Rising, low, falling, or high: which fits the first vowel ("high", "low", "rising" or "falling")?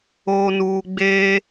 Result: low